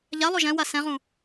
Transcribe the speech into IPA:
ʎ a lˠ o ʒ ɛ̃ w a s ɛ̃ ʁ ũ

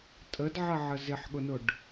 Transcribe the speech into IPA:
tʼ ə d ʕ ə ʕ ə z ɪ ħ ɠ ʊ n ʊ ɖ

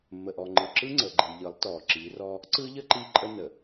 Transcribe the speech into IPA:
mː ə˨ ʔ ɔ˨ ŋ͡ǃ ɯ˨ ǁ ɯ˦ ŋ͡ǀ ə˨ ɡ͡ǃ i˨ ʎ ɯ˨˦ lˠ t ɔ˨ ǁ i˨˦ r ɔ˦ | ǀ ɯ˦ ʎ ə˦ ǃ i˦ ǃʼ ə˦ n ə˨

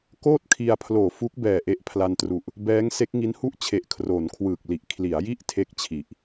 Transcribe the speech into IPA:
k oː˥˩ t̚ kʰ i˧ a̯ pʰ l oː˨˩ f u˦˥ k̚ b ɛː˨˩ ʔ e˦˥ ʔ pʰ l a˧ n t r u˨˩ ʔ | b ɛː˦˥ ŋ s e˦˥ k̚ ŋ i˦˥ n h u˥˩ ʔ t͡ɕʰ e˨˩ ʔ kʰ r o˩˦ n kʰ w ɯː˨˩ k̚ l i˨˩ ʔ kʰ l i˩˦ a̯ j i˥˩ ʔ tʰ e˥˩ k̚ t͡ɕʰ i˨˩ ʔ

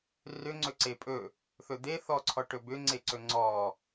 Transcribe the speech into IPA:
r ʏ ŋ͡ǀ ɵ ǀ e pʼ ɵ | θ ɵ d̪ e θ ɔ ǀʰ ɔ ʈ ɵ b ʏ ŋ͡ǀ e ǀ ɵ ŋ͡ǀ ɔ

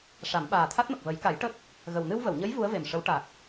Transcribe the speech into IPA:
ʂ a˨˩˦ m ɓ aː˨˩ t̪ʰ a˦˥ t̚ m ə˨˩ k̚ v ə˨˩˦ j k a˨˩˦ j ʈ ə˦˥ k̚ | ɣ ə˨˩ w n ɨ˧ w v ə˨˩˨ w ɲ ə˧˥ j v u˧˥ ə̯ v e˨˩ m ʂ ə˧˥ w ʈ a˨˩ k̚

